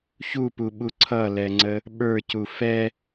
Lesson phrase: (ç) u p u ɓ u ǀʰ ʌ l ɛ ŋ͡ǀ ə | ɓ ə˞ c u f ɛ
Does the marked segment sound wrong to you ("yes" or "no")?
no